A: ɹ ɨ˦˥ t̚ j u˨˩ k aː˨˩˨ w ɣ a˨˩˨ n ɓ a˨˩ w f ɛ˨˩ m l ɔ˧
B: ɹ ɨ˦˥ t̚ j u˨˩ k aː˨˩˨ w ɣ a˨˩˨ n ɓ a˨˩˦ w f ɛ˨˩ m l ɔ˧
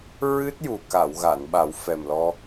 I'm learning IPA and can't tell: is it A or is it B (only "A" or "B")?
B